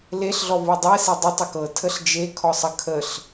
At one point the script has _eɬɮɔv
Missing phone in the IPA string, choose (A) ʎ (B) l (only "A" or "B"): B